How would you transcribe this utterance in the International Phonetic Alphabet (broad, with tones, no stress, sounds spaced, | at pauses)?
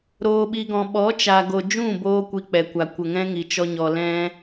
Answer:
ɾ oː˧ ɓ i˧ ɡ ɔ̃˨ ɓ ɔ˨˦ t͡ʃ a˨ ɡ o˨ d͡ʒ ũ˦˨ b oː˦ kʷ i˧ k͡p ɛ˨ kʷ a˨ kʷ ə˨ ŋ ɛ̃˦ ŋ i˨ t͡ʃ ɔ˧ ɲ ɔ˨ l ɛ̃˦